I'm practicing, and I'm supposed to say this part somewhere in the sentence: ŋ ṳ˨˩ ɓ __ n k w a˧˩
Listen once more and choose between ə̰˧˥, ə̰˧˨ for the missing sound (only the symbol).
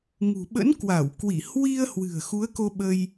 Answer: ə̰˧˥